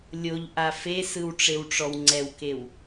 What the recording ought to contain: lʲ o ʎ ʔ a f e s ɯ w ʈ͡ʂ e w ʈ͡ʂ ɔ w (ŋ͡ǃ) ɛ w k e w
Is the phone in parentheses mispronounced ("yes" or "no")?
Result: yes